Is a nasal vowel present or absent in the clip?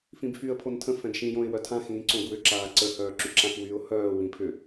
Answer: present